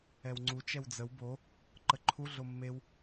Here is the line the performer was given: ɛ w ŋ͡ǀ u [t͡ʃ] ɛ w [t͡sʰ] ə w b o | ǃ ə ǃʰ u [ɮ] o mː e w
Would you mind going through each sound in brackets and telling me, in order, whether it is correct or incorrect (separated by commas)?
correct, incorrect, correct